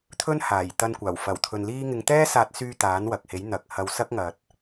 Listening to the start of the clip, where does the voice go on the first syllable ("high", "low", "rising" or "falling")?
high